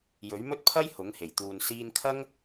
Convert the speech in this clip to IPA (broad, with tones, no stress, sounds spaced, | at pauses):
j ɵ˨˥ ɥ m ɵ˥ t̚ pʰ ɐ˥ j h ʊ˨˥ ŋ h e˨˩ j t̪ uː˨ n s iː˧ n kʰ ɐ˥ ŋ